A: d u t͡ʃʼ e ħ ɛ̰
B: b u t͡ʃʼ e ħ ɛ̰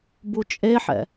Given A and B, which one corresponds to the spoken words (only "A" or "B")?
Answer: B